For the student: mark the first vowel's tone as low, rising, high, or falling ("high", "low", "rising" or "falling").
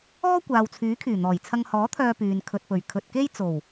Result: high